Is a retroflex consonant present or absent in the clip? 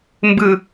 absent